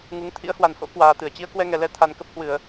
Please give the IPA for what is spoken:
ŋ u˨˦ ŋ t̪ʰ ḭ˧˥ ə̯ h w a˨˩ n h o̰˧˥ k w aː˧ t̪ ɨ˧˩ ə̯ t͡ɕ i˨˦ ə̯ k w ɛ˧ ŋ ɛ˨˩ l ɛ˧ t̪ʰ a˨˩ n k ə˦˥ p̚ h w ɨ˧˩˨ ə̯

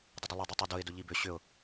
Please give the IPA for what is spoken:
dˤ ə dˤ ʊ lˠ ʏ dˤ i tˤ ʏ d ʊ ɪ̯ d ʊ ʎ i b ʏ ɕ ʏ ʊ̯

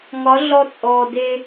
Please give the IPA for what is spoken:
ŋ ɒ˨˦ ɮ ɔ˧ t͡sʼ ɔː˨ d e˧

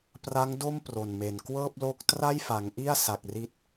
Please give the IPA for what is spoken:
p r a˦˥ ŋ d o˥˩ m p r o˨˩ n m e˨˩ n k w ɤː˥˩ p̚ l o˦˥ k̚ t r a˥˩ j f a˩˦ ŋ ʔ i˥˩ a̯ s a˨˩ k̚ r i˥˩ t̚

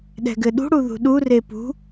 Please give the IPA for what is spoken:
ɗ ɛ̤ ɡ ɘ ɗ ṳ ɽ u ð ṳ ɗ u r e p ṳ

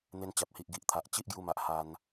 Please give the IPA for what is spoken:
n̪ e˧ n t͡ɕ a˨ p̚ h i˨ ʔ ɡ i˨ ʔ t̪ʰ a˨ ʔ t͡ɕ i˦ ʔ ɡ j u˧ m a˨ ʔ h a˧ n

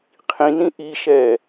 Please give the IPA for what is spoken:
qʰ ĩ n ĩ ʔ i ʃ ɛ

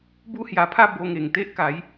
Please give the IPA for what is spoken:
b u˦ h j a˧ pʰ a˥˧ b o˧ ŋ e˨˩ ŋ t̪ e˦ ʔ k a˨˦ j

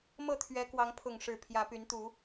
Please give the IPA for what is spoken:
m ɤ˥˨ t̪ʰ ɥ ɛ˨˦ k w ɑ˨˦ ŋ pʰ ʊ˥˨ ŋ ʂ ɻ̩˥˨ pʰ j ä˨˦ p y˨˦ n t̪ u˨˦

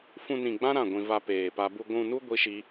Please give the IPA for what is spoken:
f ũ˧ n ĩ˨ ɡ͡b ã˦ ɾ ã˦˨ ɡʷ ĩ˧ v a˧ p eː˨ p a˧ b u˧ ɡʷ ũ˧ n u˦ ɡʷ i˦ ʃ i˦

